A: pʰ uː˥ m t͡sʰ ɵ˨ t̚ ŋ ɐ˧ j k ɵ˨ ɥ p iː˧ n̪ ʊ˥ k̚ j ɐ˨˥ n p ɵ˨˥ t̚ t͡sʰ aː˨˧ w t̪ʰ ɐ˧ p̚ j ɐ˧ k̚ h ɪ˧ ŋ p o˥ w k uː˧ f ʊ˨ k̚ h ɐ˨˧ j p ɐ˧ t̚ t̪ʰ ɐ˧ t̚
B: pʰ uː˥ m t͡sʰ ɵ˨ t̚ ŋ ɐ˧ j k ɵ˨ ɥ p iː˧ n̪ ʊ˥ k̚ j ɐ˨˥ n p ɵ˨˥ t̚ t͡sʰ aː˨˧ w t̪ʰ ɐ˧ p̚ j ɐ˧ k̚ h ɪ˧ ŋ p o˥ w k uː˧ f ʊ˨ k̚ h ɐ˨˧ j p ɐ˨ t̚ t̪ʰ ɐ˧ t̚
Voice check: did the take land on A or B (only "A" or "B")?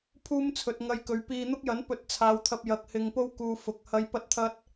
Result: A